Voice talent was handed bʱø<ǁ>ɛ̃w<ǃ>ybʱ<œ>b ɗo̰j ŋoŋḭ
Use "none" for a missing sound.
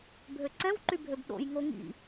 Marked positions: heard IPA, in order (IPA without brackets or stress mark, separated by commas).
ǀ, ǃ, ø